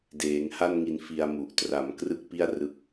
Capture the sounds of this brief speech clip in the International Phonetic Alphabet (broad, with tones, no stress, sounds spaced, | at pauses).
d eː˩˦ ŋ h a˥˩ n ŋ i˧ n f i˧ a̯ m u˨˩ ʔ t r a˩˦ m k r ɯ˥˩ k̚ p i˥˩ a̯ r ɯ˦˥ k̚